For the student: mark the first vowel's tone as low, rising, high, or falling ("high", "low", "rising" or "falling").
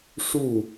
falling